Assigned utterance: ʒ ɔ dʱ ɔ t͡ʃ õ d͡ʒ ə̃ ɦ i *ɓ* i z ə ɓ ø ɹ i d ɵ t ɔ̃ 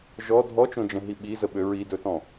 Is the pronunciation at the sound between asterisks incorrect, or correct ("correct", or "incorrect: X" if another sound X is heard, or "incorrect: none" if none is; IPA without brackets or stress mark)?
correct